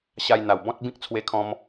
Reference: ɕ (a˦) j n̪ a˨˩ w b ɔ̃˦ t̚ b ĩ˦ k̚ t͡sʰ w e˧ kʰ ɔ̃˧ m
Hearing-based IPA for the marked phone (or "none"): a˧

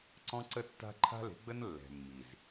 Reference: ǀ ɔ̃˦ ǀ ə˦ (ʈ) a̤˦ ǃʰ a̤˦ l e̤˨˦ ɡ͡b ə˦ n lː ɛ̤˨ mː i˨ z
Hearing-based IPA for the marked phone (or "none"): tː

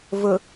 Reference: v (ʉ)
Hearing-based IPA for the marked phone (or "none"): ʊ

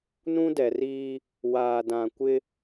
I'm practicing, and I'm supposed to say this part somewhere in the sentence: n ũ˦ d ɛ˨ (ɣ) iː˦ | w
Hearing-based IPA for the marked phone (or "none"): r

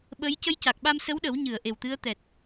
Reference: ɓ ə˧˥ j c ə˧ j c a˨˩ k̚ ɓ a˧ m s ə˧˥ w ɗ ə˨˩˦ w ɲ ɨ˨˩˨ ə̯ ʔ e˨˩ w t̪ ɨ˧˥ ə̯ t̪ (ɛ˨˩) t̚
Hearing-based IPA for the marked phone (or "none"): ɛ˨˩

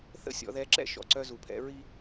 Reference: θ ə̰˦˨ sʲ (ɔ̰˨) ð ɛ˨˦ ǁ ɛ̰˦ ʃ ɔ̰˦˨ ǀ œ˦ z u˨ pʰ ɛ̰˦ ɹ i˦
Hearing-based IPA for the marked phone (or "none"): ɔ̰˨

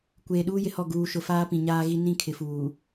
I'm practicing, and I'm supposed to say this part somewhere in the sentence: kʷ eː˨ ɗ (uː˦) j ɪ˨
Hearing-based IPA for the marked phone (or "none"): uː˦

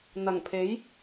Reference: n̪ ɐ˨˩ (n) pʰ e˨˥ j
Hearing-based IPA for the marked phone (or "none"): ŋ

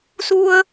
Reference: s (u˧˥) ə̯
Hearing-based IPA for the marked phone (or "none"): u˧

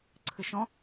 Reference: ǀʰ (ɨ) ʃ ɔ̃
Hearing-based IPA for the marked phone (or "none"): ɨ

